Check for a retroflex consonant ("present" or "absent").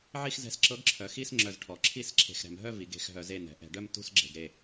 present